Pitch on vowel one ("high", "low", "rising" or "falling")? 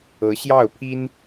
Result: rising